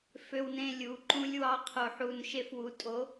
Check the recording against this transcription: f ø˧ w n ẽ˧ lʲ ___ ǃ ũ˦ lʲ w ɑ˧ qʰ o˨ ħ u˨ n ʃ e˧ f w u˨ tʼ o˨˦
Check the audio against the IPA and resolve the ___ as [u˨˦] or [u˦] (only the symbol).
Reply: u˨˦